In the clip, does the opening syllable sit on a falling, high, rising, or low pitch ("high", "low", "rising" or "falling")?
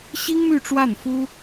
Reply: high